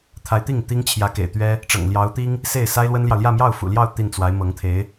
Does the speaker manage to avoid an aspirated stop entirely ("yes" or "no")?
no